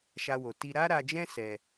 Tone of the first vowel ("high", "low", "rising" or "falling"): high